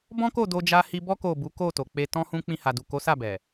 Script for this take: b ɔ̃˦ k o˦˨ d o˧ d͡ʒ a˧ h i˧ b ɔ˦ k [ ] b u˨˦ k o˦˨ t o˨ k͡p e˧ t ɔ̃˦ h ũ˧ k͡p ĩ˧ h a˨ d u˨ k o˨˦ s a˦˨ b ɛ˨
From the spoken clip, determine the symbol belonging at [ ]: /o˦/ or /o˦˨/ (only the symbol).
o˦˨